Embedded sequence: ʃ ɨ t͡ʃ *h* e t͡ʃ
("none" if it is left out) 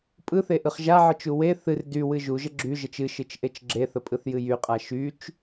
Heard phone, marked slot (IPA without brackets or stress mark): ʔ